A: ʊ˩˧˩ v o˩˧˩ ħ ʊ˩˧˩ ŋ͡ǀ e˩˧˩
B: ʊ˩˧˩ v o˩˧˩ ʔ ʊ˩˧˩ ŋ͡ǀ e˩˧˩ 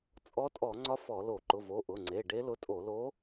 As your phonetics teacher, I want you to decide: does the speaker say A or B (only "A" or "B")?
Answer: B